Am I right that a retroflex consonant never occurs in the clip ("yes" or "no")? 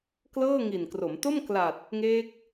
yes